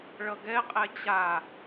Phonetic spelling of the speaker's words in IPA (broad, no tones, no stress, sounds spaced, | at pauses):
ɭ ʌ ɡ ɛ qʼ ɛ t͡ɕ a